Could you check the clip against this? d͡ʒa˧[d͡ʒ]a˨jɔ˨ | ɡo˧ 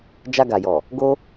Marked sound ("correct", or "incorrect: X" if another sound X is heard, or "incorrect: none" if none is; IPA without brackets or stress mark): incorrect: ɡ